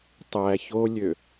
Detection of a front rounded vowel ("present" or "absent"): present